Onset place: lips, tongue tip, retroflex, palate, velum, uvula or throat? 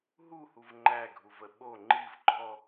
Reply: throat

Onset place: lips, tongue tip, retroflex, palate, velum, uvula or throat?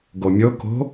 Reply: velum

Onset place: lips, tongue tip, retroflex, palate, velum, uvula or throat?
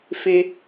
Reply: lips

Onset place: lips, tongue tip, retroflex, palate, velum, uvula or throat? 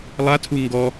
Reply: tongue tip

